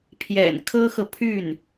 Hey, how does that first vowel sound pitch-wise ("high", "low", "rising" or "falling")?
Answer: low